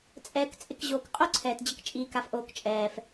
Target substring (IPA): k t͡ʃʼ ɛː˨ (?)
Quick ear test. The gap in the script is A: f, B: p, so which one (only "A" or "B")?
A